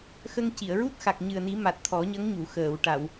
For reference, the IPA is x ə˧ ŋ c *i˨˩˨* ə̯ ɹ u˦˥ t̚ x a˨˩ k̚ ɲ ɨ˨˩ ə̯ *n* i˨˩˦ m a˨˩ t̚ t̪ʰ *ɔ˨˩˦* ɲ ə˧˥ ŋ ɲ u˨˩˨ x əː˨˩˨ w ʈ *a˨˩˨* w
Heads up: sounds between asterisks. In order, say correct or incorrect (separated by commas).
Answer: correct, correct, correct, correct